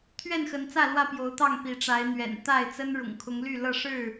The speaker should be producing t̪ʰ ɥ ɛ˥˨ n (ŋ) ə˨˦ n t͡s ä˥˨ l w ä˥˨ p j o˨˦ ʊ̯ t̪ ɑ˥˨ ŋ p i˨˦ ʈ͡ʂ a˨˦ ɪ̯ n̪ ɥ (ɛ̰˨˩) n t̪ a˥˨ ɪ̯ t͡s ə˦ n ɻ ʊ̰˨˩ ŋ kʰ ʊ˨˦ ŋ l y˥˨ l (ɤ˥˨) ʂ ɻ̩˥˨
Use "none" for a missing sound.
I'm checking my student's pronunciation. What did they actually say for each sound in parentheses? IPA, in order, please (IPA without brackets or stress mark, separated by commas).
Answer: x, ɛ̰˨˩, ɤ˥˨